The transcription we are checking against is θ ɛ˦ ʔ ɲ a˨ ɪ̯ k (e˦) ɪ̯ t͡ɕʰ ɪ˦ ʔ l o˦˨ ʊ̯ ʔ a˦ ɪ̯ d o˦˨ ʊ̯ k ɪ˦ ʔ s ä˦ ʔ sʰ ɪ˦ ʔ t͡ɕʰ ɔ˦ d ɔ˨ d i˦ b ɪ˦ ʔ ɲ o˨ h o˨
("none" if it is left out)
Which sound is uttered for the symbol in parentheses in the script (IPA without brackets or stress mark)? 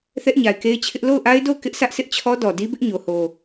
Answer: e˦